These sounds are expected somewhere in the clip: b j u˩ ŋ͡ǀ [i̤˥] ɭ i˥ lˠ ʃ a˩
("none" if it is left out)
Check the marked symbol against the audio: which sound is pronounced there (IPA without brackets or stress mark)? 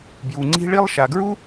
i̤˥